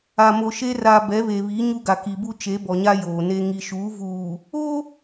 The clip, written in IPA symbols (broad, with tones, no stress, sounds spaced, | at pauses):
a˨ m o˨ ʃ e˦ r a˨ b ɛ˨˦ β e˨ β i˨˦ ɲ u˦ ɡ a˨ k i˨ b u˦ t͡ʃ e˨˦ b ɔ˨ ɲ a˦ j oː˨ n e˦ ŋ i˨ ʃ uː˨˦ v uː˨ | o˦